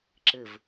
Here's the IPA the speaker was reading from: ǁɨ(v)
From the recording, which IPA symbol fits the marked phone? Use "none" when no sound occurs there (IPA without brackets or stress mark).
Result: v